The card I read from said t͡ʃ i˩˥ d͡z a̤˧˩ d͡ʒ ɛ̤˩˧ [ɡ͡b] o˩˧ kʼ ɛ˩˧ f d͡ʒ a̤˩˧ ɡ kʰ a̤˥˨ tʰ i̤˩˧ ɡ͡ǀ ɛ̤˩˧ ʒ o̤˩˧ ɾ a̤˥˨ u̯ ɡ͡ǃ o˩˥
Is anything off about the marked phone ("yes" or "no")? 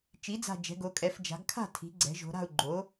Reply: yes